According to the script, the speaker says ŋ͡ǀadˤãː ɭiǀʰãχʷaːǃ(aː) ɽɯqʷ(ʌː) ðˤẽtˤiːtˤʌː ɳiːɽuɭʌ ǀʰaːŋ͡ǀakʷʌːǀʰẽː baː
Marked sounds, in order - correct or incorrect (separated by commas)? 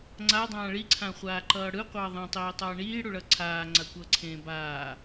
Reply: incorrect, correct